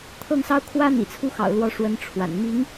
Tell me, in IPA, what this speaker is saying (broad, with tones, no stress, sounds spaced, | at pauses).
t̪ʰ ɤ˥˩ ŋ s ɑ˥ ʊ̯ kʰ w ä˥ n̪ ḭ˨˩ t͡sʰ u˥ x ɑ̰˨˩ ʊ̯ l w ɔ˧˥ ʂ w ə˧˥ n ʈ͡ʂʰ w a̰˨˩ n m i˧˥ ŋ